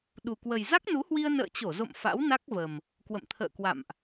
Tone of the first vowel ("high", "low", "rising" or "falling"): low